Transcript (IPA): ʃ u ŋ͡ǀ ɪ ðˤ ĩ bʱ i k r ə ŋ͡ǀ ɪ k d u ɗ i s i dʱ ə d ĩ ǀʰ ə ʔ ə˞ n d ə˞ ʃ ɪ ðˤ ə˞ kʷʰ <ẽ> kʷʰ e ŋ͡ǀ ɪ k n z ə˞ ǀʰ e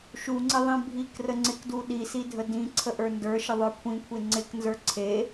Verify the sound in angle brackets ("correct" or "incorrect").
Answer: incorrect